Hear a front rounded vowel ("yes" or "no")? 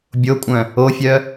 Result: yes